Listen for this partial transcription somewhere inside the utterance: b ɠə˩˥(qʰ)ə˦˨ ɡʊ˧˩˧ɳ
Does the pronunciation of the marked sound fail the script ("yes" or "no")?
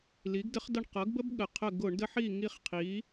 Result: no